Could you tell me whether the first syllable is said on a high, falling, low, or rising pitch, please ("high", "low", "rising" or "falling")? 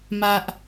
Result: high